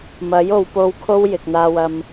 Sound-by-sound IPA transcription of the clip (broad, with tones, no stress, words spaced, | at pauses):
mɐ˨˥jo˨˧wpo˧w kʰo˥wjɪ˨k̚n̪aː˧wɐ˧m